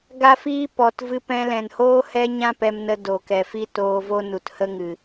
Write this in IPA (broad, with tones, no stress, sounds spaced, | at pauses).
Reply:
ɡ a˦ f iː˦ p ɔ˨ t v ɨ˧ p ɛ̃˧ l ɛ̃˨ n h oː˦ h ɛ˦ ɲ ã˦ p ɛ˧ m n ə˧ d o˨ k ɛ˨ f i˦ t oː˧ v o˦ n u˨ t h ə˦ ŋ ɨ˨